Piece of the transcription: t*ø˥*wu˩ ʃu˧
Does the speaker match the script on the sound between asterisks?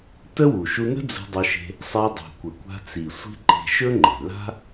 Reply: no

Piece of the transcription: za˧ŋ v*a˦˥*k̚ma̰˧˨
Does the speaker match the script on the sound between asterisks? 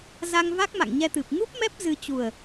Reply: yes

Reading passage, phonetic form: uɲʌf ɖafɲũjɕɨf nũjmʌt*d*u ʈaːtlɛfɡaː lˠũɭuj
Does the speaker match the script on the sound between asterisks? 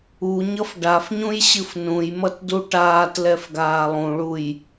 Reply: yes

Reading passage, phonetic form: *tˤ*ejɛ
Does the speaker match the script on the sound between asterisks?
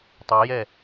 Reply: yes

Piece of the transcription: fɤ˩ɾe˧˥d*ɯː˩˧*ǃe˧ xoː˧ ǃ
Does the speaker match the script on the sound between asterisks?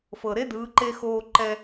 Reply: yes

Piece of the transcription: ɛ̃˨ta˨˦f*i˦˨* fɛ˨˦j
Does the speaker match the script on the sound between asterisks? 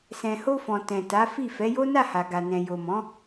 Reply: yes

